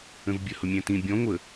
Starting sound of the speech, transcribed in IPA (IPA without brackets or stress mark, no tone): ə̃